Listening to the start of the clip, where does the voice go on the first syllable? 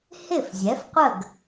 falling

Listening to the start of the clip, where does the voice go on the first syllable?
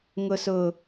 high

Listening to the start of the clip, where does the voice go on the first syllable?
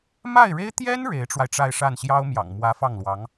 falling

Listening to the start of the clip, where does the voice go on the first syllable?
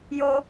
high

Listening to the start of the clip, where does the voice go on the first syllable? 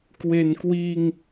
low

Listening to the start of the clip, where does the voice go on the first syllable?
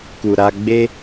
low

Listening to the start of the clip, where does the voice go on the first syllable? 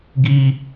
high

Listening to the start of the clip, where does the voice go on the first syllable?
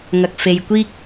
low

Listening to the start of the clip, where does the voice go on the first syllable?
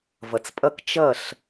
low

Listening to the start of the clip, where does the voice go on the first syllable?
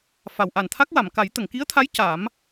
low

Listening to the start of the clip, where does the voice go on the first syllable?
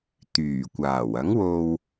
low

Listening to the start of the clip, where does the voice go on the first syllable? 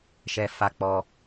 high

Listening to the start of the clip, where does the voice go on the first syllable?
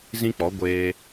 high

